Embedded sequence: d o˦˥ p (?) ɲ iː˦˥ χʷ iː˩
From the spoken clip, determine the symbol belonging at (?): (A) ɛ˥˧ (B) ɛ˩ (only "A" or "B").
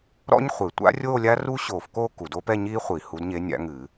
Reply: A